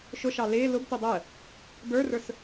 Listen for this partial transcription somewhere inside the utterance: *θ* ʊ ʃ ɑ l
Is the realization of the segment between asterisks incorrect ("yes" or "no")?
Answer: yes